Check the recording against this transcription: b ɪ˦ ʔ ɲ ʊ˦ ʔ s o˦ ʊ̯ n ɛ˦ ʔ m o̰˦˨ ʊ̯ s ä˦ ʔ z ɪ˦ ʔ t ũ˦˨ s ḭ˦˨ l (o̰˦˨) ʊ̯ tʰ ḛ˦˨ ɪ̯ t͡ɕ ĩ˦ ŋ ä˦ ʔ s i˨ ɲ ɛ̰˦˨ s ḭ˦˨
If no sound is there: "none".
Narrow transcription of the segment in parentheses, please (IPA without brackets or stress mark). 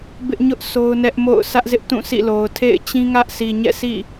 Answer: o˨